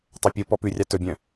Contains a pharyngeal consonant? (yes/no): no